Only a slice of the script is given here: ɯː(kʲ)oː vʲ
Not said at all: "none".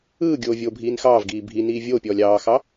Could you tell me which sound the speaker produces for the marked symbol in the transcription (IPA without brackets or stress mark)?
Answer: ɡʲ